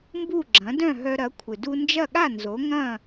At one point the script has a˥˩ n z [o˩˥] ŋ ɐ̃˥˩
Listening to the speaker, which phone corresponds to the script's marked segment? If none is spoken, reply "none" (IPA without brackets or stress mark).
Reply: o˩˥